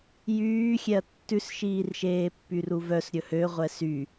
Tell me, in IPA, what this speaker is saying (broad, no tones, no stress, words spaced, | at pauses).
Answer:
jyːxʲɛɐ̯ tːʉsʃiːrʃeː pːyruvœs ɾʲɵhø ʁʷɛsy